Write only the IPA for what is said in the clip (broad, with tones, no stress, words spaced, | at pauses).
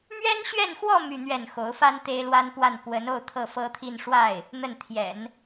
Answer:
mɥɛ˥nɕɥɛ˥˧nxwɔ˥˧ my˥˧n̪ɥɛ˥˩n xo˧˥ʊ̯fa˥n t̪e˥ɪ̯lwa˥npwa˥˩n pwə˧˥no˥˧ʊ̯ t̪ʰɤ˥˩fɤ˥t̪ʰi˥˧n ʂwa˥˩ɪ̯ | n̪ə˥˩nt̪ʰjɛ̰˨˩˦n